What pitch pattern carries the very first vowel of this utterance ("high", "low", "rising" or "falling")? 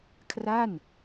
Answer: falling